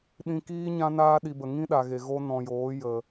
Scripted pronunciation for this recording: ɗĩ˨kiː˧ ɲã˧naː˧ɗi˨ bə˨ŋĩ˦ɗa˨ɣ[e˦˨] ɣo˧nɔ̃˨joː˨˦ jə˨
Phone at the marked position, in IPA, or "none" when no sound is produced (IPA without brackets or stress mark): e˨